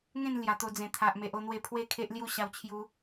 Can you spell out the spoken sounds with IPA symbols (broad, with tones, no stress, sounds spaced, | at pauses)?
ŋ ẽ˥˧ n l j a˨˩ t̪ o˧ d͡z ẽ˨˩ t̪ʰ a˨ ʔ m e˨ ʔ o˥˧ n̪ w e˧ pʰ w e˥˧ kʰ e˦ ʔ l j u˥˧ ɕ a˧ w t͡ɕʰ j u˧